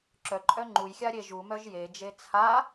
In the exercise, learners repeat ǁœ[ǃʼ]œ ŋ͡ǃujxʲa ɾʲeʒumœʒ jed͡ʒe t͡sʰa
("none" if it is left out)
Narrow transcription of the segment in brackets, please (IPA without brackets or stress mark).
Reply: ǃʼ